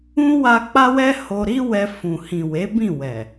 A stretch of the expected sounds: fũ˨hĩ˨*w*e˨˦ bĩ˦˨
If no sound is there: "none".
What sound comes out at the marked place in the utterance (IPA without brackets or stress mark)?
w